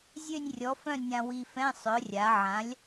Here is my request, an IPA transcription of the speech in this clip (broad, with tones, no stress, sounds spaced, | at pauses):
zʲ ø˥˧ nʲ rʲ ɔ˨˥ f œ̃˥˧ nʲ ã˧ w i˧ f ɛ̃˧˥˧ sˤ œ˨˥ rʲ a˨˥ ʕ ã˨˥ lʲ